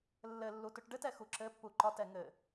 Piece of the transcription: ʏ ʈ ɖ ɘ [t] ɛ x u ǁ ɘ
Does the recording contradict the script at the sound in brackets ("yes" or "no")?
no